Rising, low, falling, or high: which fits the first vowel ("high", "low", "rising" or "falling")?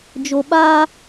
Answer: low